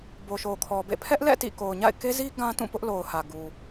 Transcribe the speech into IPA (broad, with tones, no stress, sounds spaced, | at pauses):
b o˨ ʃ o˨ kʰ ɔ˨ b ḛ˦˨ pʰ ɛ˦ ʔ l ɛ̰˦˨ t ḭ˦˨ k o˨ ʊ̯ ɲ a̰˦˨ ɪ̯ k e˦ z i˦ ɡ ã˦ t ũ˦˨ p ʊ˦ ʔ l o˨ ʊ̯ h ä˨ ɡ u˨